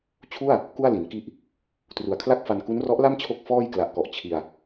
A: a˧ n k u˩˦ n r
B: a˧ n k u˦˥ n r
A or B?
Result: B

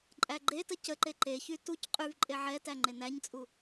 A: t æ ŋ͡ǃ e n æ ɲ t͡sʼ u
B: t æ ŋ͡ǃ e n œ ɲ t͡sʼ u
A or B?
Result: A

